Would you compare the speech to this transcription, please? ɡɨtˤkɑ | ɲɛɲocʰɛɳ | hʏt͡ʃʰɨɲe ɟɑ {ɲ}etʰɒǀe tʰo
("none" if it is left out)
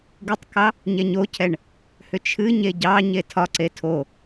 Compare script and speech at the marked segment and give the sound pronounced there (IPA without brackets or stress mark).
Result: ɲ